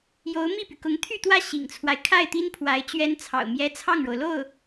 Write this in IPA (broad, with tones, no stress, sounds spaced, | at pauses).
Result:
j o˧˥ ʊ̯ m i˥˩ p y˩ k ʊ˧˥ ŋ t̪ʰ y˥˧ t̪ w ä˥˩ ɕ ḭ˨˩ ŋ t͡sʰ w a˦ ɪ̯ kʰ a˥˩ ɪ̯ t̪ i˥ n pʰ w a˧˥ ɪ̯ t͡ɕ ɥ ɛ˥ n t͡sʰ ɑ̰˨˩ ʊ̯ m j ɛ˥ t͡sʰ ɑ˥˩ ŋ ɻ o˩ ʊ̯ l o˥˩ ʊ̯